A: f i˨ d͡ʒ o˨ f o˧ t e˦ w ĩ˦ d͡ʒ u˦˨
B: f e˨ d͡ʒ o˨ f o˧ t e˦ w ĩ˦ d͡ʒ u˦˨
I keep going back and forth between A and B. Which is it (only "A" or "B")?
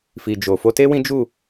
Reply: A